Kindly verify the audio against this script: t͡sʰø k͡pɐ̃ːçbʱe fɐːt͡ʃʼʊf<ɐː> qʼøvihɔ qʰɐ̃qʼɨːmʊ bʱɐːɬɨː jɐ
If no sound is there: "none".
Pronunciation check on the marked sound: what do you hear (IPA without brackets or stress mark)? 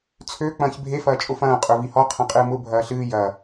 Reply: ɐ̃ː